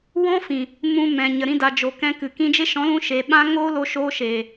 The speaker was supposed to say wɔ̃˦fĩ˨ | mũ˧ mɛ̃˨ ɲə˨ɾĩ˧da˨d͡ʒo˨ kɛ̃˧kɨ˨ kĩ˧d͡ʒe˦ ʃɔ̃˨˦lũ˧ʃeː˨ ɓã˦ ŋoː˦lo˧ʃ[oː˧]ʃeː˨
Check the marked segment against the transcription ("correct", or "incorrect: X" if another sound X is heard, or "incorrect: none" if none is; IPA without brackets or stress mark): correct